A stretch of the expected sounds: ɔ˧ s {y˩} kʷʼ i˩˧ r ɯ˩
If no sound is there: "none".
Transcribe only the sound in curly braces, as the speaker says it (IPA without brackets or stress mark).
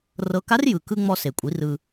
e˩